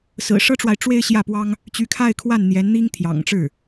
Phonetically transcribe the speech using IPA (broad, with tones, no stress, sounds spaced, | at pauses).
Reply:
s ɹ̩˨˩ ʂ ɤ˥ ʈ͡ʂ w a˨ ɪ̯ ʈ͡ʂ w e˥ ɪ̯ ɕ j ä˥˩ p w ɑ˥ ŋ | t͡ɕ y˧˥ kʰ a˥˧ ɪ̯ kʰ w a˥˩ n n̪ j ɛ˧˥ n n̪ i˥ ŋ t̪ʰ j ɑ̰˨˩ ŋ ʈ͡ʂ ɻ̩˥˩